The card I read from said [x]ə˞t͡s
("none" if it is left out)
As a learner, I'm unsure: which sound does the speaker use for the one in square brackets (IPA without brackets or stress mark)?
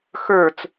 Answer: x